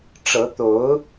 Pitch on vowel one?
rising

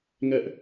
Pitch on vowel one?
high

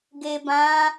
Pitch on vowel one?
low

